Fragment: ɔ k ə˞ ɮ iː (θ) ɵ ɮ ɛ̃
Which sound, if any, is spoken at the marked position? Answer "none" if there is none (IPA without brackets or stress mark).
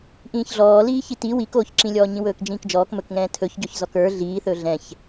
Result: θ